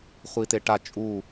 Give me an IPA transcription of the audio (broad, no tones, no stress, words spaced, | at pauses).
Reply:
χʷiteʈa t͡ʃʼu